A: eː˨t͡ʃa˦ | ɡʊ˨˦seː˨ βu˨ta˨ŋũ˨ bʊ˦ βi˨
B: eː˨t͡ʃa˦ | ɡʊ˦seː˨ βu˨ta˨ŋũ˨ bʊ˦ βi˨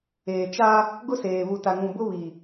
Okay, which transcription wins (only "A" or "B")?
B